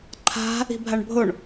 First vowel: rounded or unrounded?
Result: unrounded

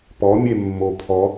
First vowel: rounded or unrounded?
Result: rounded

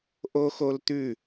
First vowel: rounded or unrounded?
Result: rounded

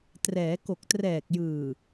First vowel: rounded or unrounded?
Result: unrounded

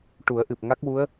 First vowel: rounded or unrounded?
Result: rounded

